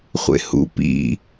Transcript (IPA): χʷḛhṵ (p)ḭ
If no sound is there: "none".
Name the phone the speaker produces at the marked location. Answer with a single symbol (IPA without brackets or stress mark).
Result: p